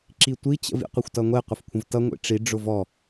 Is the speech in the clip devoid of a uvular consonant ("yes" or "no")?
no